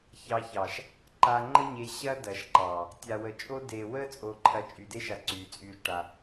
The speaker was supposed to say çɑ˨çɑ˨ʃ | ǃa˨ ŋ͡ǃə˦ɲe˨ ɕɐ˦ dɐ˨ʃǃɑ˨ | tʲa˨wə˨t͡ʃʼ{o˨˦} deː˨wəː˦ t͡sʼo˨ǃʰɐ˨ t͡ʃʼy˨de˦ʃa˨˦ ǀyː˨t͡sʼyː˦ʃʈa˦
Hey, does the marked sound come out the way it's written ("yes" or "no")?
no